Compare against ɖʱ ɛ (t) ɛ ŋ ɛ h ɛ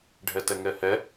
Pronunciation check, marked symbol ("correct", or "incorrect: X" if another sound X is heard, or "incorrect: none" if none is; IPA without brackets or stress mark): correct